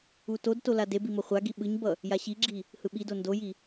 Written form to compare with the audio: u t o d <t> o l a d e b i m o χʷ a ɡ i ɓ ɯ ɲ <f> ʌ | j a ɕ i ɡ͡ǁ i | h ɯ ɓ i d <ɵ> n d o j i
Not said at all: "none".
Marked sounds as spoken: t, b, o

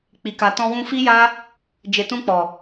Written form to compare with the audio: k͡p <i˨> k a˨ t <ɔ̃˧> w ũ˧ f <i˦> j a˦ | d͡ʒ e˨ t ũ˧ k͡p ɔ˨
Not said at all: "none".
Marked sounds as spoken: i˨, ɔ̃˧, i˦

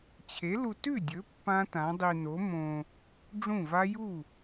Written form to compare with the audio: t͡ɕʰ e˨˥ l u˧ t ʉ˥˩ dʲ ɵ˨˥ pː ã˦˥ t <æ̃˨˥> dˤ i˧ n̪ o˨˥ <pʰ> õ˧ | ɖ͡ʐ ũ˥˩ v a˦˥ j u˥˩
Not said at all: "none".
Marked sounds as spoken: ã˨˥, m

